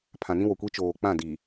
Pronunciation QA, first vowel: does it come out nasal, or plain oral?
nasal